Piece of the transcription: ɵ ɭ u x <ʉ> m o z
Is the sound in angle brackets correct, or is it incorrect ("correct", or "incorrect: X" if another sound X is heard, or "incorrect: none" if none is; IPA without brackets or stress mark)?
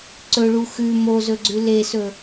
correct